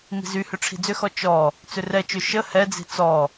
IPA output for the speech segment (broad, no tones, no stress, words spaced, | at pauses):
mi̤zyhʏ ʈ͡ʂʰi̤d͡zʏxɔ t͡ʃɔ | t͡sʏrɛt͡ʃø ʃə hɛd͡zi̤ t͡sɔ